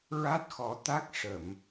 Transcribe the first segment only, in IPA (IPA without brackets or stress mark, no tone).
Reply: ɹ